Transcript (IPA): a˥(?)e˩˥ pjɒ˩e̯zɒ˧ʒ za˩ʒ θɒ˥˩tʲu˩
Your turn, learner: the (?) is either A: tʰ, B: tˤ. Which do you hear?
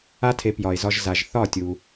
A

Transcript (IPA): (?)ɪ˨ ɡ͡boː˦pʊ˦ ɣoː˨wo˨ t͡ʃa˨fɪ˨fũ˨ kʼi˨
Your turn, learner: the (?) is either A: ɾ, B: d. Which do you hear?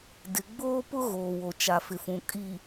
B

